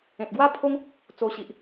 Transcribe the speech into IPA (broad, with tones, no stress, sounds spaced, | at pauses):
ẽ˨ t̚ ɡ w a˦ pʰ o˦ ŋ | t͡s o˧ ɕ i˨ ʔ